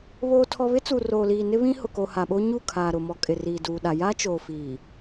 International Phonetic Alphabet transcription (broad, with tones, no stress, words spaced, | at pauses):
βoː˨tʰɔ˨βɪ˦ t͡su˨roː˨liː˨ nɪ˦βĩ˦hʊ˨ko˨ ha˨ɓo˦ɲu˦˨kʰaː˨ ɾʊ˨mɔ˨kʼɪ˨ riː˨duː˨ɗa˨ jaː˦t͡ʃoː˨fiː˨